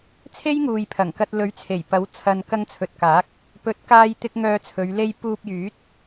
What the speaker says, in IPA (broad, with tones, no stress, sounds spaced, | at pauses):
t͡sʰ e˥ j ŋ uː˨ j pʰ ɐ˨˩ ŋ k ɐ˧ t̚ l ɵ˨˥ ɥ t͡sʰ e˨˩ j p ɐ˨˥ w t͡sʰ ɐ˨ n k ɐ˧ ŋ t͡sʰ ɵ˨ t̚ k aː˨˥ k̚ | p ɵ˨˥ t̚ k aː˧ j t̪ ɪ˧ k̚ ŋ œː˧ t͡sʰ ɵ˨˧ ɥ l e˧ j p uː˧ p̚ j yː˨˥ t̚